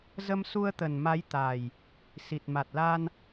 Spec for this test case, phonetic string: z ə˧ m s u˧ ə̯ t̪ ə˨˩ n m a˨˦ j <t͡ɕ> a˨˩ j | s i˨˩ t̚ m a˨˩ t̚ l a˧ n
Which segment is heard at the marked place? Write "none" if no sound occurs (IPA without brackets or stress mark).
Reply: t̪